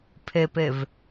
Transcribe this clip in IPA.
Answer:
pʰ e p e v

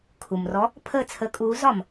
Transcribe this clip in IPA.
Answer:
kʰ u˩ m r ɔ˨˥ | pʰ ə˥˨ t͡sʰ ə˨˥ kʼ uː˨˥ z ɒ˩ m

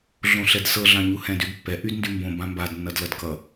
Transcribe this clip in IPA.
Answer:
ɮ õ ɬ ɛ d s ɤ ɮ ɑ̃ ɲ u h ɛ̃ d y d pː ɛ ʔ y d n d y m b õ b ã m b a d nː ʌ d l ʌ d k ʌ

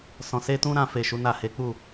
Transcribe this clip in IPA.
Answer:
s ɔ̃˨ s e˧ t ũ˦ ɾ ã˧ f e˨ ʃ u˨˦ n a˦˨ h e˨˦ k͡p u˦˨

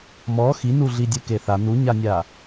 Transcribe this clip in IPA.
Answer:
m ɔ x i n u ɮ i dʲ ɯ k e θ a n u ɲ a nʲ a

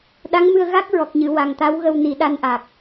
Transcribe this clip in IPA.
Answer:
ɗ a˧˥ ŋ m ɨ˧ ə̯ ɣ a˦˥ k̚ ɹ ɔ˨˩ k̚ ɲ ɨ˨˩˨ w a˨˩ ŋ t̪ a˧˥ w ɣ ə˧ w n i˨˩˦ ɗ a˧ n ʔ aː˨˩ k̚

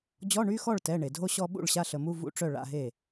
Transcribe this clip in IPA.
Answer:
d͡ʑ ɔ˧˥˧ ɳ y˧˥˧ x ɔ˥˩ ɭ t ɛ˩˧˩ ɳ e˩ dʱ o˥˧ ɕ ɔ˥˧ ɓ ṵ˥˩ ɭ ɕ a˥˧ ɬ ə˩˧˩ m u˥˧ v ṵ˧˥˧ ʈ͡ʂ œ˥˩ ɭ a̰˧˥˧ ɦ e˥˩

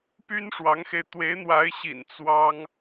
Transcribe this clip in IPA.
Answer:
p y˥ n ʂ w ɑ˧˥ ŋ x e˧ ɪ̯ t̪ w e˧˥ ɪ̯ n̪ w a˧˥ ɪ̯ ɕ ḭ˨˩ n t͡s w ɑ˥ ŋ

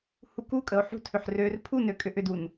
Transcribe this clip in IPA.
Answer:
h u k u kʼ ə o̯ ħ ṳ tʰ ʏ ħ r ø r pʰ u n ø kʼ ʏ ʔ ʏ d u n

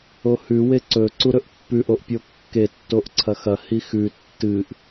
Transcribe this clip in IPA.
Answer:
o h ʉ w e ǀ ɵ ǀ u ɾ ɵ ʔ pː ʉ ʔ o ʔ pʲ o kː e tː o ʔ ǀʰ ɐ x ɐ h i x ʉ tː ɨ ʔ

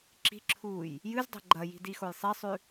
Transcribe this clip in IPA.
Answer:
ǁ i̤ ǁʰ uː j | j ɨ z dˤ e̤ ɡ͡ǃ ɐ j i̤ d i x o j sˤ e sˤ ʉ

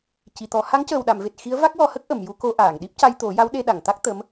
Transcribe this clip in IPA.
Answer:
c i˨˩˨ t̪ ɔ˨˩˦ h a˧˥ ŋ c əː˨˩ w ɗ a˨˩˨ m v e˨˩ t̚ x i˧˥ ə̯ v a˦˥ k̚ w ɔ˧ h ə˦˥ k̚ ʔ ə˨˩˨ m j u˧ k o˧ ʔ aː˨˩˨ ŋ ɗ i˦˥ p̚ c a˧ j t̪ o˨˩˦ j a˧˥ w ɗ e˧ ɗ a˨˩˨ ŋ t̪ a˦˥ k̚ t̪ ə˧˥ m

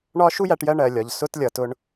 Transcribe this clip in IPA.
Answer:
ɳ ɒ˦ ʃ u˦ j æ˨˦ ʈ j ɜ˧ ɳ ɜ˨ lʲ ɒ˨ ʎ s ʊ˧ t lʲ ʌ˨ t ʊ˧ ɳ

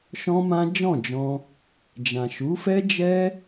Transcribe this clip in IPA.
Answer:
ʃ ɔ̃˦ m ã˦ d͡ʒ ɔ̃˦˨ d͡ʒ ɔ̃˧ | d͡ʒ ã˨ ʃ u˨˦ f ɛ˦ d͡ʒ ɛ˦

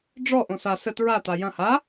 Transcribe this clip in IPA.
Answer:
ɖ͡ʐ ɔ ʔ õ s a s ə t ɹ a t a j ɐ̃ h a

